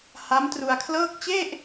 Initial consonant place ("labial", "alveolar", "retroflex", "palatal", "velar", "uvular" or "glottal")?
glottal